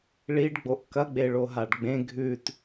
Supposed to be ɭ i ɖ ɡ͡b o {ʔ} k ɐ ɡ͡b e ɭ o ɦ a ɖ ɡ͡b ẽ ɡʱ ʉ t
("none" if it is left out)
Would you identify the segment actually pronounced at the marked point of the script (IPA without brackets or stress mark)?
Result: ʔ